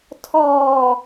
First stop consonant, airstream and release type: aspirated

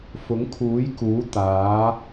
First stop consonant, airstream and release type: aspirated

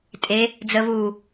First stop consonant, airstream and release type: ejective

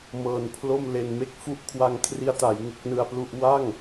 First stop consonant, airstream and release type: aspirated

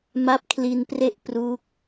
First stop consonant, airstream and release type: plain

